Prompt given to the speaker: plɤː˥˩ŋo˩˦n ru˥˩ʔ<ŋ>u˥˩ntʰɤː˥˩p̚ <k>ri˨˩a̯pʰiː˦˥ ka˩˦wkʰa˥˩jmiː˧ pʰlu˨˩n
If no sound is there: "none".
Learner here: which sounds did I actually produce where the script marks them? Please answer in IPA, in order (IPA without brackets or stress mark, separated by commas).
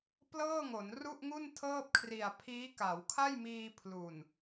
ŋ, kʰ